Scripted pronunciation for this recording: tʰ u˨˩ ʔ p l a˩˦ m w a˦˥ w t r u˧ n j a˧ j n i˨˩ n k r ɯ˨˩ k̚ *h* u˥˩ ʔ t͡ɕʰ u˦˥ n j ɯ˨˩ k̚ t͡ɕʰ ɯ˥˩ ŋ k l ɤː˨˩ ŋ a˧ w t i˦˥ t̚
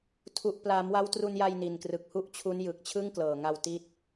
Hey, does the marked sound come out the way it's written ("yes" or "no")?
yes